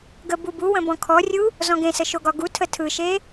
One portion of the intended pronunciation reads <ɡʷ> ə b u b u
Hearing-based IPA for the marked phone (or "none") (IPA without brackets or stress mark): ɡ